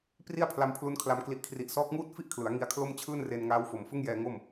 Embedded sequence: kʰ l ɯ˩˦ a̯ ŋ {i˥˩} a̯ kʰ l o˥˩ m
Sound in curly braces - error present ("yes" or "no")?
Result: yes